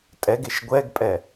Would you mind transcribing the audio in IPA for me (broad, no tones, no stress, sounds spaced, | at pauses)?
tʼ ɛ ɡ e ʃ ɡʷ ɛ ɡ pʼ ɛ